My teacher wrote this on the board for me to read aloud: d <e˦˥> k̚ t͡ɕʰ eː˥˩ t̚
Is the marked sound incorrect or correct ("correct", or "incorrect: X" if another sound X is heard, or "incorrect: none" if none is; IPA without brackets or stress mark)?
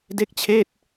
correct